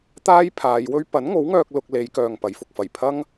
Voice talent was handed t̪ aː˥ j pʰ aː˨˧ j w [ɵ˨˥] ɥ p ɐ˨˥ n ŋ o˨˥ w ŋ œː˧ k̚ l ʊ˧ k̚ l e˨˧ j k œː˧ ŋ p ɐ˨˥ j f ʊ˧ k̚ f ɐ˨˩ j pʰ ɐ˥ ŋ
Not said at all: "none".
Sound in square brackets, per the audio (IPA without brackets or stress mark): ɵ˥